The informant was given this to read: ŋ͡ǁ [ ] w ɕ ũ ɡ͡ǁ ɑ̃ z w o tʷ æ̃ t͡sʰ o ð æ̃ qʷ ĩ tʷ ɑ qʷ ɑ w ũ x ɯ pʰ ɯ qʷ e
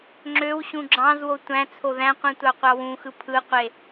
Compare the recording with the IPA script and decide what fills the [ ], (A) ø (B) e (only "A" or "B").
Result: A